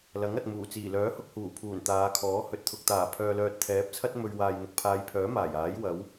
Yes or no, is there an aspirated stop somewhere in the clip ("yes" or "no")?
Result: yes